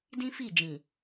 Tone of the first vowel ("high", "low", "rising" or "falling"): high